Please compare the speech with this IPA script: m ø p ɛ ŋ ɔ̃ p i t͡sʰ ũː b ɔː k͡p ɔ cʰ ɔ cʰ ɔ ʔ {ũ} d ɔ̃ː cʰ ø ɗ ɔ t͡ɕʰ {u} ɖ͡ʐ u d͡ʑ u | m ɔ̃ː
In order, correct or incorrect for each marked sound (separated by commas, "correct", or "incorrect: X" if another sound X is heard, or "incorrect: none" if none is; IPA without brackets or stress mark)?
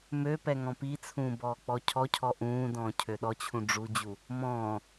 incorrect: ũː, incorrect: ũ